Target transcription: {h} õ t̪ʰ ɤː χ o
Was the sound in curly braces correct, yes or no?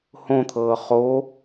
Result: yes